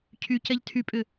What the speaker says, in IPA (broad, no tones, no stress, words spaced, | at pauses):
cʰycɛʎ tʰypʼʏ